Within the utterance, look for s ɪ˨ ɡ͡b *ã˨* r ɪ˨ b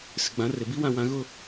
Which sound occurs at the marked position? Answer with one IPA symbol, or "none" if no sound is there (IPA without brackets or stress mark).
ã˨˦